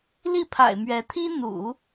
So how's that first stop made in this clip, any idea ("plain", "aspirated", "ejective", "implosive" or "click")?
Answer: aspirated